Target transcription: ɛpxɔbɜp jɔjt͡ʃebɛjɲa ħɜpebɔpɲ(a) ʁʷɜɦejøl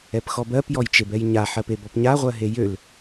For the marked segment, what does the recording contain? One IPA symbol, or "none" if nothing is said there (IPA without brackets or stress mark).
a